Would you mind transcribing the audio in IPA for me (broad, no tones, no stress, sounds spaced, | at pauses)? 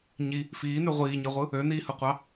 ɲ i | f iː n y ʁʷ iː ɲ i ʁʷ ɯ | ø n iː h ɯ qʷ ɑ